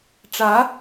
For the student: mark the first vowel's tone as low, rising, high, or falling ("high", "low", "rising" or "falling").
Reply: rising